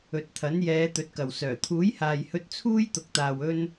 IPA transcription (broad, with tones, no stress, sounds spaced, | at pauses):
ɵ˨ t̚ t̪ʰ ɐ˨˥ n j ɛː˨˧ t̪ ɵ˨˥ t̚ k ɐ˨ w s œː˨˩ t̪ʰ uː˨˥ j h aː˨ j h ɵ˧ t̚ t͡sʰ uː˥ j t̪ ʊ˨ k̚ t̪ aː˨ w ɵ˥ n